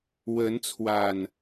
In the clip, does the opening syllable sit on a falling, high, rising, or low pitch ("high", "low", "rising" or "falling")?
rising